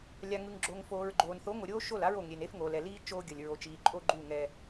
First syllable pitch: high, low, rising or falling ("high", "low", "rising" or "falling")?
low